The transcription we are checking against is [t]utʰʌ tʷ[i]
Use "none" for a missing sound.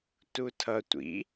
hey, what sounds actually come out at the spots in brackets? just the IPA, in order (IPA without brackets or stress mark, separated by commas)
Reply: t, ḭ